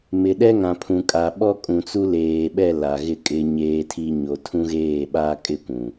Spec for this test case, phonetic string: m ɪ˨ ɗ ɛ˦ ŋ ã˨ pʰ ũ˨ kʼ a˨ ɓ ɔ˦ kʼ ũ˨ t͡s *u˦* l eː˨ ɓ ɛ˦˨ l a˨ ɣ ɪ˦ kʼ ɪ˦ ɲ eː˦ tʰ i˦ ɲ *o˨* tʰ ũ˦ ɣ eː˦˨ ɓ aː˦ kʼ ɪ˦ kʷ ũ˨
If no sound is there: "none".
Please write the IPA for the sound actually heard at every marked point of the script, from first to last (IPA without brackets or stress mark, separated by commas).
u˦, o˨